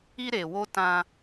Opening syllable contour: high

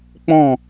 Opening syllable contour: falling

